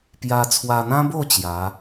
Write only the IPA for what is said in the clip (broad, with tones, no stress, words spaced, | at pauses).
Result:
pja˧t͡sʰwa˧n̪ã˦bo˥˧ t͡ɕja˨˦